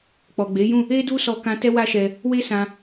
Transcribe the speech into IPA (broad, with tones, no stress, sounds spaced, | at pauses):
k͡p ɔ˨ ɡ͡b e˨˦ j ũ˦˨ | e˦ d u˦ s ɔ˧ k ã˧ t ɛ˦ w a˦ ʃ ɛ˧ | w e˦ s ã˧